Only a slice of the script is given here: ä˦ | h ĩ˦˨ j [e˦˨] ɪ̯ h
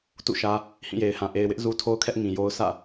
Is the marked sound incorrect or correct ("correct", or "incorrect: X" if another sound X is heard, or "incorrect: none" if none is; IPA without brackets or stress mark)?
incorrect: e˨